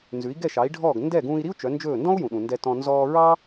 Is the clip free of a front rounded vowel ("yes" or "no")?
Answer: no